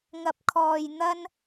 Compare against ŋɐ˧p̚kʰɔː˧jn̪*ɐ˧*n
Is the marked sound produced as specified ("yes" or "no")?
no